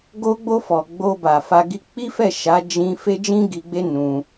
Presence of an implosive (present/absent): absent